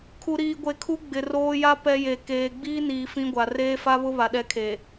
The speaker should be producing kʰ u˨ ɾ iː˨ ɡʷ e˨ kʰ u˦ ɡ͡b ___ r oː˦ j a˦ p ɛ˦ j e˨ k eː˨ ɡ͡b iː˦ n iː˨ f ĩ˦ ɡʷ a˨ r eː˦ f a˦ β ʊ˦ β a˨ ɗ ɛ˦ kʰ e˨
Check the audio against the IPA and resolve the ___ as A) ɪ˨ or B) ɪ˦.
A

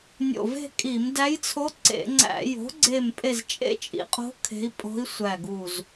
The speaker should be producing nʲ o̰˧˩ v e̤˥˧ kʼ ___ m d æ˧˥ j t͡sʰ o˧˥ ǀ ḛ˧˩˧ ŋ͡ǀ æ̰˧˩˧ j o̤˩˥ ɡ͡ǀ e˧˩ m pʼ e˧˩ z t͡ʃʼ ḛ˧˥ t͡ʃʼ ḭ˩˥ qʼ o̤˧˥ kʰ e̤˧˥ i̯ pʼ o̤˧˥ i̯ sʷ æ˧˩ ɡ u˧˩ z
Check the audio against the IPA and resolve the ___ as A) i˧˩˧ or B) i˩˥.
A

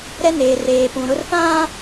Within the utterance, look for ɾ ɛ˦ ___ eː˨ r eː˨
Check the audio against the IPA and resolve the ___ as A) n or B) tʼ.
A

